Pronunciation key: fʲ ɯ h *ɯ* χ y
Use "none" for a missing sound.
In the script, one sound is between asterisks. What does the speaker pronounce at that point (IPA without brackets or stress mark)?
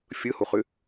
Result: u